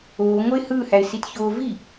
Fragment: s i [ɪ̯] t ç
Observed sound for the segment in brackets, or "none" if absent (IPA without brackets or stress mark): none